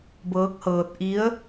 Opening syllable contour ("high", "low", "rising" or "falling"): rising